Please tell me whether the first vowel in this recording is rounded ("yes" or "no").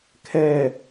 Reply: no